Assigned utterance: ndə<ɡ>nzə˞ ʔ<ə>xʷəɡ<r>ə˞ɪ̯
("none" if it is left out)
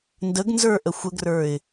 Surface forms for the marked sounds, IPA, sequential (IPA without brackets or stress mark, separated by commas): ɡ, ə, r